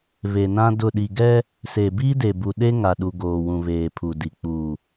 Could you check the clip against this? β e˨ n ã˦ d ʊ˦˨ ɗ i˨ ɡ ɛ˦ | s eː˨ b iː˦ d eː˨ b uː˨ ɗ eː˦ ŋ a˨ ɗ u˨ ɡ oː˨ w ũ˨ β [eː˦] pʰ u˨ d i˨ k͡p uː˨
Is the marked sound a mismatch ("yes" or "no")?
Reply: yes